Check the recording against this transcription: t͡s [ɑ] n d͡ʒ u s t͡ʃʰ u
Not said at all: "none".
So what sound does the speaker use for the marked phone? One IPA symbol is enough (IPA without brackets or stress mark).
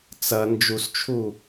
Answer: ɐ